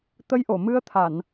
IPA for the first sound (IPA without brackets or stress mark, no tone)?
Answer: t̪